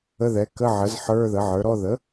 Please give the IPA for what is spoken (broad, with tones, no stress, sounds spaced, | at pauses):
ə˧˥˧ ð ɛ˩˥ k ə˧˥˧ ʕ ə˩˥ z ħ ə˞˧˥˧ ð ə˩˥ ʕ ə˞˩˥ ɾ ɔ˧˥˧ ð ə˩˥